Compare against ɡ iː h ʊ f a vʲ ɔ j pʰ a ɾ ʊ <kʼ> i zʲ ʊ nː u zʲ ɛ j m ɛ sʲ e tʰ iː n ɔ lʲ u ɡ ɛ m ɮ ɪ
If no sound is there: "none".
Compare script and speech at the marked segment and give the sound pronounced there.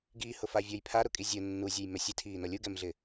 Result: kʼ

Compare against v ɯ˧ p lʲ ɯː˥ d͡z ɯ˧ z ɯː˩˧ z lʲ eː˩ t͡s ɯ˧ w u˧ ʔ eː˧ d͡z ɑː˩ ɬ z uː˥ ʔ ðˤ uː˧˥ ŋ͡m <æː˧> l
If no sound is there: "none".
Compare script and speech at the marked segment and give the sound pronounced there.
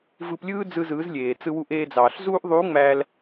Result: æː˧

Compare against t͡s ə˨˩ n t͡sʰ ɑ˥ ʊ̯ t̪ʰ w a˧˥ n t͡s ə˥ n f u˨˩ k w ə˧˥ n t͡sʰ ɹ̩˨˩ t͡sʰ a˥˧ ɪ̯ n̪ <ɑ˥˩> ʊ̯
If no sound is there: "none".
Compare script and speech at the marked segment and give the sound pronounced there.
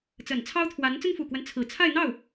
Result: ɑ˥˩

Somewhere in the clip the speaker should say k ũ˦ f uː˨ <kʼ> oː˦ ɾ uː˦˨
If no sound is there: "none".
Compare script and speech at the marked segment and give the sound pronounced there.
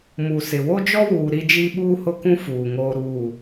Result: ŋ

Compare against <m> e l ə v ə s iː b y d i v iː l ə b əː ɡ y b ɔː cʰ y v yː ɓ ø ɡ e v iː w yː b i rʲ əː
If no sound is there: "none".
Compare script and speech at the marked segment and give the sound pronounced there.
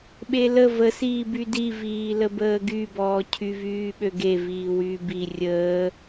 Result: ɓ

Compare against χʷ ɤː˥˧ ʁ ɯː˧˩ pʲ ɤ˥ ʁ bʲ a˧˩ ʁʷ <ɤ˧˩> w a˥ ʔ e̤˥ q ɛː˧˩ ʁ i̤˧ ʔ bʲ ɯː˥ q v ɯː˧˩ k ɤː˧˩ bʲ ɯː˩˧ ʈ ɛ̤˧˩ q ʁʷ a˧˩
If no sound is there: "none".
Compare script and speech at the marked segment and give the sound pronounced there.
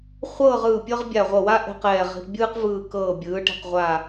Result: ɤ˧˩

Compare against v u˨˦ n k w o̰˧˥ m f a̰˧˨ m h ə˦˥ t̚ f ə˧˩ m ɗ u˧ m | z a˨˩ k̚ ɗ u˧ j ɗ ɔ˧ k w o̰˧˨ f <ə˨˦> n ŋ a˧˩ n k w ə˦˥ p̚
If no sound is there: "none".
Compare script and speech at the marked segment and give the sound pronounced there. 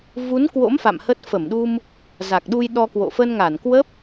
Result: ə˧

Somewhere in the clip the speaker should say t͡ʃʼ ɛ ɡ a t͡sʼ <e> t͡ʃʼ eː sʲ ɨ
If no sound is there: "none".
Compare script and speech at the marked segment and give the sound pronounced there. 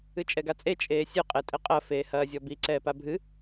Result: e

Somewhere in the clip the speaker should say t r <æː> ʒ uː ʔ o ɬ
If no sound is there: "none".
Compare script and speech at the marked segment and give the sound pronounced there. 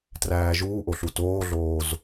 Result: æː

